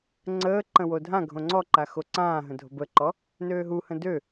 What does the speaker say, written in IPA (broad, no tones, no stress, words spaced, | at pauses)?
ŋ͡ǀəːǃə̃ wodʱãɡʱõ ŋ͡ǀɔǃa xoǀãːɦə̃ dʱo̤bəǃɔ | nøːɦuhə̃ dø